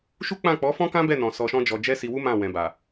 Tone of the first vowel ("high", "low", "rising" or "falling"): high